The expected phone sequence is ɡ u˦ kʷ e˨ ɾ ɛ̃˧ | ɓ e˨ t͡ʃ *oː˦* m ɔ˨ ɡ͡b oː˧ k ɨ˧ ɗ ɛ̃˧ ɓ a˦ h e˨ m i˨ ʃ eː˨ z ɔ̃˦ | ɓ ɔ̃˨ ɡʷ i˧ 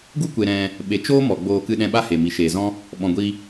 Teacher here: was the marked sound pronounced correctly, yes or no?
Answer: yes